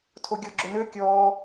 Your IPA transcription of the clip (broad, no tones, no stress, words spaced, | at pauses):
tʰoɡʲɔɡ͡ǁønø kʲɔː